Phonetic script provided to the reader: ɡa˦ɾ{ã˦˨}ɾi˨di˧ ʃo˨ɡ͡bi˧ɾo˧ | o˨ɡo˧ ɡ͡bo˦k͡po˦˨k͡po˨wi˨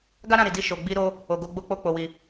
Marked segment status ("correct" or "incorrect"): correct